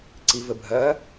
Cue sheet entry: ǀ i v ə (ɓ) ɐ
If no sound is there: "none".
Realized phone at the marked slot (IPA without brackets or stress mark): bʱ